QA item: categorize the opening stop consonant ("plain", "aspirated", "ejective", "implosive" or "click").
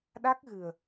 implosive